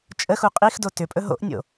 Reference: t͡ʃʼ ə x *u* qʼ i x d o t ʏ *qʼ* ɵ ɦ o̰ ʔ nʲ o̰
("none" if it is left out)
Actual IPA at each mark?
u, pʼ

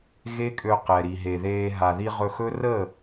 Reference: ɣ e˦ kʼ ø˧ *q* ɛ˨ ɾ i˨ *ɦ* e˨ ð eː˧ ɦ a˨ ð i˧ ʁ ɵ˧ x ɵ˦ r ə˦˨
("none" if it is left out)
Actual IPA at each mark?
q, ɦ

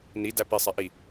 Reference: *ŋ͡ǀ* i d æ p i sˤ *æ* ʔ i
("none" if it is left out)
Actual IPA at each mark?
n, ɛ

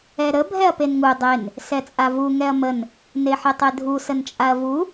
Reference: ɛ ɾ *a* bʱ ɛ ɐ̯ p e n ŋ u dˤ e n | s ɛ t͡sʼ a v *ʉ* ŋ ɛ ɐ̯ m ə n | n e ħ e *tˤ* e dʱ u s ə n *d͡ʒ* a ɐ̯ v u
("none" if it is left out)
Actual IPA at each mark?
ə, u, tˤ, t͡ʃʼ

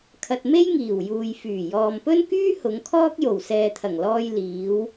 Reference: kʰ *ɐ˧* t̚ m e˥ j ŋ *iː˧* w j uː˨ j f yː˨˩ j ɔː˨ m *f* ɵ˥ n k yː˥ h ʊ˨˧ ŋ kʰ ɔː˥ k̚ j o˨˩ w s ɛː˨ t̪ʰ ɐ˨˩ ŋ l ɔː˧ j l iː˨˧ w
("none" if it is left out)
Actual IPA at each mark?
ɐ˧, iː˨˩, p

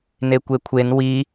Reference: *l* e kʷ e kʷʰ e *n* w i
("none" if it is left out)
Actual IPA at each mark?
n, n

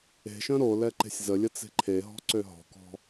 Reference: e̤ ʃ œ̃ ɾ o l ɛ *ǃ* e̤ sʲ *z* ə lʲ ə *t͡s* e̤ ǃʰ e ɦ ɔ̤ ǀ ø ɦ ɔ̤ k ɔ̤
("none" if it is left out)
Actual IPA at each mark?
ǃ, z, t͡s

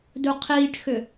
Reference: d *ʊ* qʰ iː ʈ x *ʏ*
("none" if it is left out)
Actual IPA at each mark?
u, ʏ

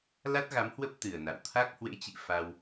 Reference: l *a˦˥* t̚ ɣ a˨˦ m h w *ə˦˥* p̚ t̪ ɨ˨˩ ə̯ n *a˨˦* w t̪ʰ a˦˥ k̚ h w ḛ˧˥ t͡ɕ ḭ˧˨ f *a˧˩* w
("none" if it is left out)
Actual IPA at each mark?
a˦˥, ə˦˥, a̰˧˨, a˧

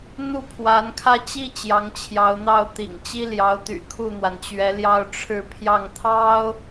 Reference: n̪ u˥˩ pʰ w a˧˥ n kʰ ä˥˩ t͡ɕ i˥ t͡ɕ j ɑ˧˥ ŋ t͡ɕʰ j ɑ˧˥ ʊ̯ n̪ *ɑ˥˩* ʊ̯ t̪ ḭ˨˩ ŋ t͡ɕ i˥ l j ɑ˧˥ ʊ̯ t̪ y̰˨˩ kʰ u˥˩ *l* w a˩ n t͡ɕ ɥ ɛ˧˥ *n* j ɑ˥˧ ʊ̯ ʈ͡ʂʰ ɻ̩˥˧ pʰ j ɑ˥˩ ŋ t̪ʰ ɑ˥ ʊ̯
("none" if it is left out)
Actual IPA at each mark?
ɑ˥˩, n̪, l

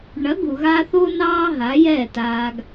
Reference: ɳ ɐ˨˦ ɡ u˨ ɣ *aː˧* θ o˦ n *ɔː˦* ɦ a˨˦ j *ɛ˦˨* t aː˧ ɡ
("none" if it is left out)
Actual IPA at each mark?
aː˧, ɑː˦, ɛ˦˨

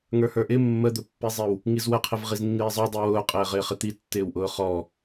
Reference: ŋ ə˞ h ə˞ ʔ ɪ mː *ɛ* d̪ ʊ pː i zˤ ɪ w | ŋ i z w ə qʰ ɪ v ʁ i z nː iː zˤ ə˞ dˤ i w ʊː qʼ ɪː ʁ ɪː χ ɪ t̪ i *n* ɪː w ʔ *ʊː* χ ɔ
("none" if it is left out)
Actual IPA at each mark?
ə, tː, ʊː

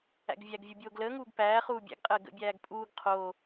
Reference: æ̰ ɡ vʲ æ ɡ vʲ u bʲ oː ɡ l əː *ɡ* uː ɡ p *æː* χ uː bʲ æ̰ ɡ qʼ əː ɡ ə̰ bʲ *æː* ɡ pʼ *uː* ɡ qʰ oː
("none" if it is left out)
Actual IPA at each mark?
ŋ, æː, æː, uː

